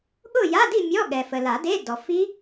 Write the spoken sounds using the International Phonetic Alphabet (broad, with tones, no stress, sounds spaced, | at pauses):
ɠ ʊ˥˨ j a˧˥˧ d i˥˨ mʲ ɔ˧˥˧ ɠ ɛ˨ f ə˨ l a˨˩˦ d e˧˥˧ d ɔ˨ f i˦˥